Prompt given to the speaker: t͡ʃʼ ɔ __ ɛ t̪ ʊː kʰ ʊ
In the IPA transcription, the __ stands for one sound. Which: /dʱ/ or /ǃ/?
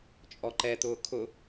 ǃ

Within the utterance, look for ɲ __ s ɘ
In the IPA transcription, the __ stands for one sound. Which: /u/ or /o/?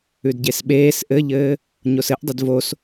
o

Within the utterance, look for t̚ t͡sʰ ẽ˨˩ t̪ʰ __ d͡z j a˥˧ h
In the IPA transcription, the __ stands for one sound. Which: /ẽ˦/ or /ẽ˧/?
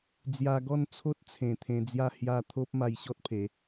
ẽ˧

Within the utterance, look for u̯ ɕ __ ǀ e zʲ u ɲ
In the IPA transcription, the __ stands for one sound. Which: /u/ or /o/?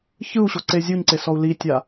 o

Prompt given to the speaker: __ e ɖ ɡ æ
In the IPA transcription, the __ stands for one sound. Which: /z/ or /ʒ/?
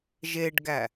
ʒ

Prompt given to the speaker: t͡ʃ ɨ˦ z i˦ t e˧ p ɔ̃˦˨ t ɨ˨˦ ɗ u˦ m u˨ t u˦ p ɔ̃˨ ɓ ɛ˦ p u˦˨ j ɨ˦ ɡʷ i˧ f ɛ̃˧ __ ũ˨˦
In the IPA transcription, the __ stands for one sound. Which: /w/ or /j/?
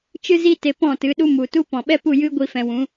w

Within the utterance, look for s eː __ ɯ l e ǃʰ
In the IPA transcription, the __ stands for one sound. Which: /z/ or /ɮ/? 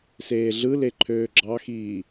ɮ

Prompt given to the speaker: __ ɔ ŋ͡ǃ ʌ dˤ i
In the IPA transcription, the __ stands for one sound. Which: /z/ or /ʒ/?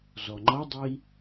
z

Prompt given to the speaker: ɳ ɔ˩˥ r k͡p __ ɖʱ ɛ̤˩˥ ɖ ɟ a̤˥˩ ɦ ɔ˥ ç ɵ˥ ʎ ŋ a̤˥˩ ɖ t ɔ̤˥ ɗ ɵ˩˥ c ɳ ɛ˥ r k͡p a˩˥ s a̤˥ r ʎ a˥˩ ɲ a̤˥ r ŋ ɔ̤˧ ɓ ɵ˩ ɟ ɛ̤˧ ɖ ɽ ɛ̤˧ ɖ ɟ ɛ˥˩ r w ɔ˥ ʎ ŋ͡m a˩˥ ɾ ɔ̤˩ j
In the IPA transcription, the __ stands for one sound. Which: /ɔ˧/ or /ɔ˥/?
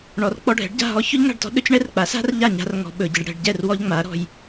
ɔ˧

